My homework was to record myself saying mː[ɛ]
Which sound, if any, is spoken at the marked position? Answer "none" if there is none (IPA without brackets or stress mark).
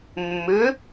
ʏ